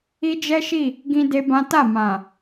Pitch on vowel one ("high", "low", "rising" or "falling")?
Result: high